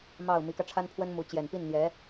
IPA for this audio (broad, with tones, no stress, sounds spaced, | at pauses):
m ɑ˥˩ ʊ̯ m i˧˥ k ä˧ ʈ͡ʂʰ a˥ n pʰ w ə˥ n m u˧˥ t͡ɕ j ɛ˨˩ n p i˥˩ n n̪ j ɛ˧˥